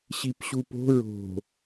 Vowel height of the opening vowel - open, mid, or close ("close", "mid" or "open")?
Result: close